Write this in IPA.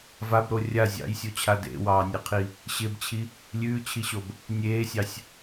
v a b ɾ o rʲ a zʲ ɑ̰ j sʲ o t͡ɕʰ a d ḛ w ɑː nʲ e qʰ i | ɕ ɪ b t͡ɕʰ i | lʲ ʉː t͡ɕʰ i ɕ o b | nʲ eː sʲ ɑ sʲ

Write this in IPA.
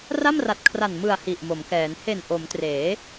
r a˥˩ m r a˨˩ t̚ kʰ r a˨˩ n m ɯ˨˩ a̯ h i˨˩ ʔ m o˩˦ m k ɛː˩˦ n h e˨˩ n ʔ o˩˦ m t r eː˩˦

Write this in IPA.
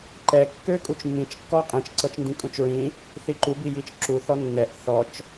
ǃ ɛ kː ø kʼ u t͡ʃ mː ĩ t͡ʃ kː ɔ qʼ ĩ t͡ʃ ǀ ɤ t͡ʃ n d ĩ kʼ ũ t͡ʃ ɹ ĩ | θ i ǃ u b i j i t͡ʃ ǁ u θ ɔ nː ɛ ʔ θ ɔ t͡ʃ

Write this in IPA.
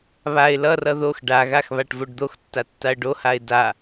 β a ɪ̯ l ʌ r ʌ ð o x ɖ a ɣ a x β a ʈ v o ɖ d̪ o x tː a tː a ə̯ ɖ o h a ɪ̯ d a

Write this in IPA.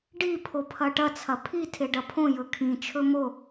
ɖ i pʰ o pʰ ɐ ʈ ɐ t͡sʰ ɐ pʰ i tʰ e ɖ ɐ pʰ õ j ɵ kʰ ĩ t͡ʃʰ ɵ m o

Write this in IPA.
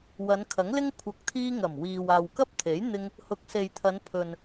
w ɐ˨˧ n kʰ ɐ˨˥ ŋ l ɪ˥ ŋ kʷʰ ɐ˨ k̚ t̪ʰ iː˧ ŋ ɐ˨˩ m w iː˨ w aː˨ w k ɐ˥ p̚ t̪ʰ e˨˥ j n̪ ɪ˧ ŋ | h ʊ˨˥ k̚ s e˨ j t̪ʰ ɐ˨˧ n pʰ ɵ˨ n

